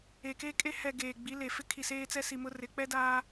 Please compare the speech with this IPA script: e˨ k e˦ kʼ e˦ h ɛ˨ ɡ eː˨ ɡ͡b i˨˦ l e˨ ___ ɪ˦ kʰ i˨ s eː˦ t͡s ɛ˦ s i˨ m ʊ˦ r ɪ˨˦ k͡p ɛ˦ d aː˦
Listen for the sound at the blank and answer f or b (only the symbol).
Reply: f